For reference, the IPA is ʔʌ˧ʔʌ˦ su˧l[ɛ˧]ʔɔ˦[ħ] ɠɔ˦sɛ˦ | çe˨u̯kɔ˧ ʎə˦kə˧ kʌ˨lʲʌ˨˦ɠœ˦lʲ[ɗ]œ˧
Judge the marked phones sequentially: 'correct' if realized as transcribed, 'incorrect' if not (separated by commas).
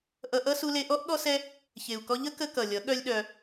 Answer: incorrect, incorrect, correct